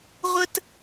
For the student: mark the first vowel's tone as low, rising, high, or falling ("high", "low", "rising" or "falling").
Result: high